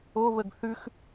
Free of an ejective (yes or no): yes